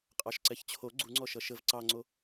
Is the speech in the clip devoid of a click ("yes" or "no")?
no